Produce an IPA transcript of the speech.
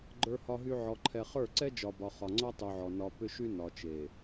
ɡ͡ǃ ə˞˨ h ɒ˨ ɦ y˨ ʕ ɔ˨ ǃʰ ɛ˨ χ ə˞˦˨ ǀ ɛ˦ d͡ʒ ɒ˨ b ɒ˨ χ ɒ˨ ŋ͡ǀ ɒ˦ tˤ y˨ ʕ ɔ˨ n ɒ˨ p ʏ˦ ʃ y˦ n ɒ˨ t͡ʃ e˨

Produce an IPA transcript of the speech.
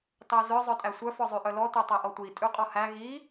t ɑ z œ zˤ œ tʼ æ sʷ œ f ɔ zˤ y ʔ œ l ɔ t œ tˤ ɛ ʔ ɔ tʷ i tʼ y qʼ ɔ h æ ɣ i

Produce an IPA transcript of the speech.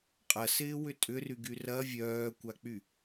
qʼ ɐ s ɪː w ʏ tʼ ʏ r y ɡ y r ɐ vʲ œː kʷ a k͡p y

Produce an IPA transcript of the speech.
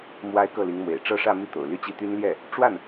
m w a˥ ɪ̯ k ɤ˥˩ l i˧˥ ŋ m w ḛ˨˩ ɪ̯ ʈ͡ʂ ɤ˥˧ ʂ ä˥˧ m i˥˩ t̪ o̰˨˩ ʊ̯ l y˥˧ t͡ɕ i˥˩ t̪ y˥ n l j ɛ˥˩ | ʈ͡ʂ w a˥˩ n

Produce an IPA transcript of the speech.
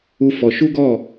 u˦ f ɔ˧ ʃ u˦ ɡ ɔ˦˨

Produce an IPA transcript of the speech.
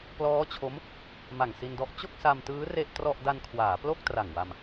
p l ɔː˦˥ t͡ɕʰ o˦˥ m | m a˨˩ ŋ s i˧ n d ɔ˦˥ ʔ t͡ɕ o˥˩ k̚ s a˧ m t ɯː˦˥ r e˥˩ ʔ t r ɔ˥˩ ʔ d a˧ n kʰ w aː˩˦ p l o˥˩ k̚ t r a˨˩ ŋ w a˧ m

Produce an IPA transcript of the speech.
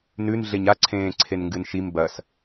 n ʉ n ɮ e ɲ a ǀʰ ẽː ǀʰ e n ŋ ɡ ɨ n ʃ i m b ɐ s

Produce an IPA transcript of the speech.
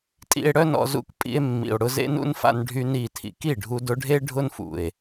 tʼ ḭ˧ e̯ ɽ œ˦ n ɔ̰˧ z ṵ˧ k pʼ ḭ˧ e̯ mː ḭ˨ o̯ ɽ ʊ˧ z ḛ˦ n ṵ˦ n f a̰˧ n ɖʱ y˦ n i˦˨ tʰ ḭ˨˦ k i˦˨ ɖʱ u˧ d ʊ˧ ɖʱ e˦ ɖʱ ʊ˦ n f ṵ˨ e̯

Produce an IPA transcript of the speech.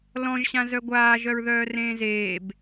l ɔ̃ ʒ ɕ ã z œ ɡʷ aː ʒ œ ɹ ð œː r ẽː z eː b

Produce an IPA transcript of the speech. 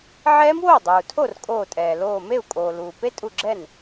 ʕ ɛː˦˥ m w oː˥˩ dˤ uː˩ tʰ o˥˩ r kʼ oː˧˩ tʼ ɛː˩ l oː˧˩ m e˥˩ u̯ kʼ oː˩ l uː˩ p e˦˥ tʼ u˧˩ ɡ͡ǁ ɛ˥˩ n

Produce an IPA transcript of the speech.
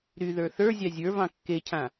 ɾ y ð ə˞ θ ə˞ zʲ ɑ zʲ ə˞ v ɑ̃ kː e cʰ ã

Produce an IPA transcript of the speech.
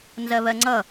n z ɜ β ɜ ŋ͡ǀ ʌ

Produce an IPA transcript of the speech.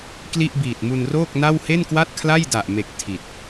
k l i˥˩ ʔ b iː˨˩ t̚ m u˧ n r oː˥˩ k̚ n a˥˩ w h e˥˩ n k w a˥˩ t̚ kʰ l a˥˩ j d a˨˩ ʔ m e˨˩ k̚ tʰ i˨˩ t̚

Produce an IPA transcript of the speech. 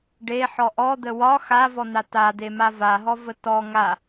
ɖ e ħ ɔ ʔ ɔ d̪ ə w ɒ x a v ɔ n̪ a t a d̪ e m a v a ɦ ɔ v ə t ɔ ŋ a

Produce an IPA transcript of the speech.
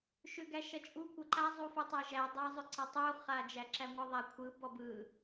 ʃ ʏ ɡ æ ʃ ɐ t͡ʃʼ u kʷ ɐ ǃ a zˤ u f u tˤ æ ʒ æ dˤ a zˤ ʏ ǀ ɐ tˤ u χ a d͡ʒ æ ǁ æ ŋʷ ɯ ðˤ æ kʷʰ ɯ b ɔ b ɯ

